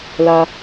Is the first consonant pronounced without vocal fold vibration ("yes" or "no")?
no